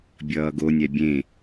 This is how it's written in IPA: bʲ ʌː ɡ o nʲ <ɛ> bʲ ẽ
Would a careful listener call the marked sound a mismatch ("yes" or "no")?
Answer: no